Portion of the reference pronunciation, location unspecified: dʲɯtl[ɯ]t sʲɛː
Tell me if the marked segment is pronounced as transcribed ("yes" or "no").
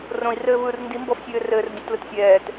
yes